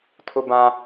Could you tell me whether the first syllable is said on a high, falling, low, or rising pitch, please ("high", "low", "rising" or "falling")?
high